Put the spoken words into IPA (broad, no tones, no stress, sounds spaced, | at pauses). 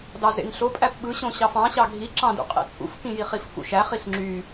d ɑ z ḛ ŋ ɬ o pʼ æ p ɓ ɯ ɕ õ ɕ ɑ f ɑ̃ ɕ ɑ ɡʱ i ǁ ɑ̃ d ṵ qʼ ḛ t͡sʼ ṵ f k ĩ j i χ i f k ṵ ʃ æ χ i ɬ ŋ͡ǁ y